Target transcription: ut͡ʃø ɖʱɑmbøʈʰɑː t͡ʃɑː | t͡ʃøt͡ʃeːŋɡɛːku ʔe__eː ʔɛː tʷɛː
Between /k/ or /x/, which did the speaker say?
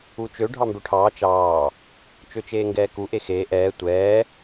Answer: x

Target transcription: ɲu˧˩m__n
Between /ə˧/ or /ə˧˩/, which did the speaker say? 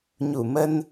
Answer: ə˧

